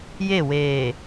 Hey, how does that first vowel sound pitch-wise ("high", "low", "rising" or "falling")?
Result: falling